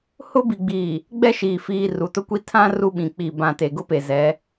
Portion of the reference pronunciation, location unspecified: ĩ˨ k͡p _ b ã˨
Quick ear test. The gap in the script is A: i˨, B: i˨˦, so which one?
A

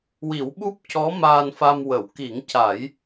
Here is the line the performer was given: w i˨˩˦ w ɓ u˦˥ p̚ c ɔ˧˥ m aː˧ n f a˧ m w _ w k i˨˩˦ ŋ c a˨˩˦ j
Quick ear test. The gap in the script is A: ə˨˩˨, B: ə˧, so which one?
A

